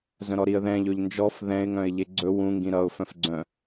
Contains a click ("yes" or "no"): yes